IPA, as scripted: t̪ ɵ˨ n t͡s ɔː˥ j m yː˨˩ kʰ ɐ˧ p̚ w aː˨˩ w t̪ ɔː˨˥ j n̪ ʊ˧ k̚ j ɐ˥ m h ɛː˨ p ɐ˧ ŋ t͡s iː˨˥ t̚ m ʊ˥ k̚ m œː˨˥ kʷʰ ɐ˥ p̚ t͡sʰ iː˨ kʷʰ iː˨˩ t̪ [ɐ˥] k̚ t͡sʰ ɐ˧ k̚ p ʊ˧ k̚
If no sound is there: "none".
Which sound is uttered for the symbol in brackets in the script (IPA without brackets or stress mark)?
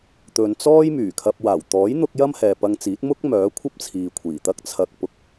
ɐ˥